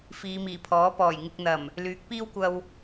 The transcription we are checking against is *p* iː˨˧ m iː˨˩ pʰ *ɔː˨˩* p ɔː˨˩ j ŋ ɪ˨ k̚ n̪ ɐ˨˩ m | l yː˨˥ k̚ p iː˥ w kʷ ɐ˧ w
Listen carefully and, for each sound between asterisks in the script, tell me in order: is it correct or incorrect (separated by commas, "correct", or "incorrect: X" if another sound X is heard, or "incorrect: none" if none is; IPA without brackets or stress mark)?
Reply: incorrect: f, incorrect: ɔː˨˥